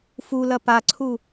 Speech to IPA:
f u l ɐ p a ǀʰ u

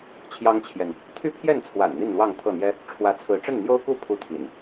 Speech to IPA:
t͡ɕʰ j ɑ˦ ŋ t͡ɕʰ j ɛ˨ n | t̪ʰ y˦ pʰ j ɛ˥˨ n t͡sʰ w a̰˨˩ n n̪ i˥˨ n l w ɑ˥˨ ŋ t̪ʰ ɤ˥˨ n̪ j ɛ˦ | ʈ͡ʂʰ w ä˨˦ t͡sʰ ɹ̩˨˦ ʈ͡ʂ ə˥˨ n n̪ j o˦ ʊ̯ k u˥˨ pʰ u˦ t̪ʰ ḭ˨˩ n

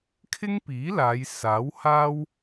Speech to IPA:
kʰ ɪ˥ ŋ p iː˨˥ l aː˨˧ j s aː˨˥ w h aː˥ w

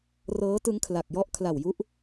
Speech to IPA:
r ɤː˦˥ t ɯ˦˥ ŋ kʰ l a˨˩ k̚ j ɔ˦˥ ʔ kʰ l a˨˩ w j u˦˥ ʔ

